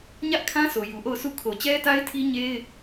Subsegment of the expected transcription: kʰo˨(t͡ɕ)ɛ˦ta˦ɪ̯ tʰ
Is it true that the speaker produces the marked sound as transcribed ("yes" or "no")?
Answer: yes